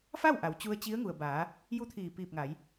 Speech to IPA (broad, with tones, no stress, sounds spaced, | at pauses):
f a˥˨ w ʔ a˩˧ w t͡ɕ u˧ ə̯ t͡ɕ i˧˥ ə̯ ŋ u˩ ə̯ b aː˩˧ | j u˥˨ t̪ʰ iː˧˩ p iː˧˩ p̚ ŋ a˩˧ j